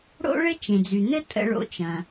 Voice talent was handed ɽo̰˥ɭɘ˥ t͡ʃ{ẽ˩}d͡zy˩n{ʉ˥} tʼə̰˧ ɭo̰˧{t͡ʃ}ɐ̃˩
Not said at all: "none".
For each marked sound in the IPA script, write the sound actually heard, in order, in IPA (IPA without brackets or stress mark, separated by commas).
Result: ẽ˩, ɘ˥, t͡ʃ